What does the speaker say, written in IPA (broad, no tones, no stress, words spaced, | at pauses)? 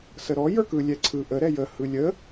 səɾɔ jə˞kɯ lʲɛǀʰɯ ʔə ɾɛjə hɯlʲə